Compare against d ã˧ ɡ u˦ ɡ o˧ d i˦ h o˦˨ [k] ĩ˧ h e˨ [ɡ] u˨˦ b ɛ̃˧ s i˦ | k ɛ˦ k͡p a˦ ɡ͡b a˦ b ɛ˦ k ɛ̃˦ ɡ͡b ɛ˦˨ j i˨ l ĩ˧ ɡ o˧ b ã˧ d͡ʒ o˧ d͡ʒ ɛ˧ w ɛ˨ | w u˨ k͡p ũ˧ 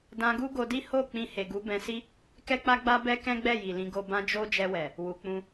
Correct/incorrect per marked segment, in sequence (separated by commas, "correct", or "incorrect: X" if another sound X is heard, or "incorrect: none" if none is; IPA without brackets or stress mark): incorrect: k͡p, correct